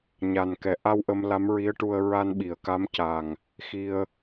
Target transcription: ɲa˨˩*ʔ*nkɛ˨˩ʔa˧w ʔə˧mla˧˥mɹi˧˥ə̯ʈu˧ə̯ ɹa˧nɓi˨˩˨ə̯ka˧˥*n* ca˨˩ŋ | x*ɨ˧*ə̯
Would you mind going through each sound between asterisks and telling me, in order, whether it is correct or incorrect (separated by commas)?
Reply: incorrect, incorrect, incorrect